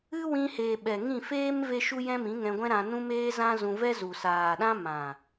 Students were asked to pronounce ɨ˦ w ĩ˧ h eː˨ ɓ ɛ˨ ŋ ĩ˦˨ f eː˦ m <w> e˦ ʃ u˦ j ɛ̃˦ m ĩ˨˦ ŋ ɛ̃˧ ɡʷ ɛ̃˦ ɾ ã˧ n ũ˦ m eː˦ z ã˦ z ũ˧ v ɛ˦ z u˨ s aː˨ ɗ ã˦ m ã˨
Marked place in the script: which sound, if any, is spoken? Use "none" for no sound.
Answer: v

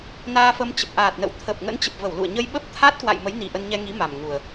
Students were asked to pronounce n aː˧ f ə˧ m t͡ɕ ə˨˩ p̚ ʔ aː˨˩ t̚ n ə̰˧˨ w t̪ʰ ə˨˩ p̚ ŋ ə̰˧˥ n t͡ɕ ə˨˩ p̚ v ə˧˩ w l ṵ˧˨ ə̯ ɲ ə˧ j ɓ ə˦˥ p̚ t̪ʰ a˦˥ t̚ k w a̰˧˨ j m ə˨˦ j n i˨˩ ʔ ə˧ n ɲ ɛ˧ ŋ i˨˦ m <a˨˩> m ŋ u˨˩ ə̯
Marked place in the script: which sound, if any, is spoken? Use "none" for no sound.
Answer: a˨˩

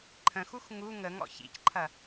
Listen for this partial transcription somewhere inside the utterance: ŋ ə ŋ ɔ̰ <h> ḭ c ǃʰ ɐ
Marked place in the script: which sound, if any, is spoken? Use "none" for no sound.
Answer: ç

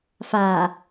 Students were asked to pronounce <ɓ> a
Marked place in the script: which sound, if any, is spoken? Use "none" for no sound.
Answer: f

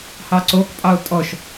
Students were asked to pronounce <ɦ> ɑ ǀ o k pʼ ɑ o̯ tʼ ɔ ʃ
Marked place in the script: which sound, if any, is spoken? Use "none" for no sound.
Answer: h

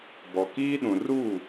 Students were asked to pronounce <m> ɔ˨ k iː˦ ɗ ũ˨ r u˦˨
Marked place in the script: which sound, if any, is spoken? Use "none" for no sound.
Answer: b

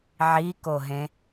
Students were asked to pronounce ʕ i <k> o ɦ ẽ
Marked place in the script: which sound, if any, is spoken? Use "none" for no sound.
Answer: k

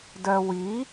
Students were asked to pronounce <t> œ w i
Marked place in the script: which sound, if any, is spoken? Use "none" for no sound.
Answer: d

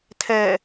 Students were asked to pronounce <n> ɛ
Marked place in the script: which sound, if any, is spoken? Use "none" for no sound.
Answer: tʰ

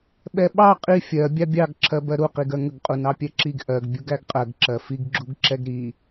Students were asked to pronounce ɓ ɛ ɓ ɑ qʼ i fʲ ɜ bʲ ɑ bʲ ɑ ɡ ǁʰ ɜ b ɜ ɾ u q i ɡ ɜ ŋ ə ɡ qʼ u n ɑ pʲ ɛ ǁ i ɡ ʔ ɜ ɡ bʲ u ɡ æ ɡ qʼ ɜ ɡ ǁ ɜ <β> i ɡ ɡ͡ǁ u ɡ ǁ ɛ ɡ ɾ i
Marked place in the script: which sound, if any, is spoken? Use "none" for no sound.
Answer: f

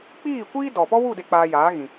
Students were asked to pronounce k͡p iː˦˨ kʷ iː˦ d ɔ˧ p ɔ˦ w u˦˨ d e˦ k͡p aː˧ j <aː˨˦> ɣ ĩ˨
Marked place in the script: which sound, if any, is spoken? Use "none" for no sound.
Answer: aː˨˦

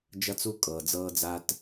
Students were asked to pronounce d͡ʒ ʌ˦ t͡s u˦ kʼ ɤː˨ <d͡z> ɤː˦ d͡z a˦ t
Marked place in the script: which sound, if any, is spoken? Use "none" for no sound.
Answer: d͡z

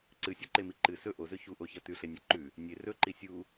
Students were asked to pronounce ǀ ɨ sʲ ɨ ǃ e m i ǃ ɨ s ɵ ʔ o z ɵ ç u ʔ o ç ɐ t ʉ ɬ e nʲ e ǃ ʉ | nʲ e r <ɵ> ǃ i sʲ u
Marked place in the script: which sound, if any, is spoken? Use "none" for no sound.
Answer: ɵ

